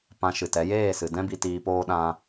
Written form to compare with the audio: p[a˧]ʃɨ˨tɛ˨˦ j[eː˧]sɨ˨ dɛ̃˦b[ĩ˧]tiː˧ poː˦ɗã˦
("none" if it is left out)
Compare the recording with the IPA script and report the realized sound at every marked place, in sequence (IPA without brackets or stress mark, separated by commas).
ã˧, eː˦˨, i˧